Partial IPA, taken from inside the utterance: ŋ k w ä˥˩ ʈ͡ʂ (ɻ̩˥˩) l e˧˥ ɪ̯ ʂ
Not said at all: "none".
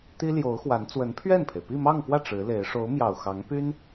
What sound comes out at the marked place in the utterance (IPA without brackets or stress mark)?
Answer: ɻ̩˧˥